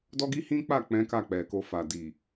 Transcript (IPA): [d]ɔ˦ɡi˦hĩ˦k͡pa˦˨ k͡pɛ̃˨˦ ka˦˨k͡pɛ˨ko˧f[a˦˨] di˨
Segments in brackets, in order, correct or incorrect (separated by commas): correct, incorrect